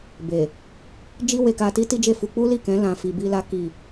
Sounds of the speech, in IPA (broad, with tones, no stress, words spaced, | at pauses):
be˨ | d͡ʒi˦we˧ka˧ti˦ ti˦d͡ʒe˦˨fu˧ k͡pu˦li˦˨kɛ̃˨˦ lã˧fi˧bi˦la˦ ki˦˨